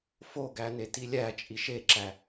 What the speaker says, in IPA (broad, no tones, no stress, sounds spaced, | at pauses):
f o ɡ æ n e t i lʲ æ t͡ʃʼ i ʃ e ǁ æ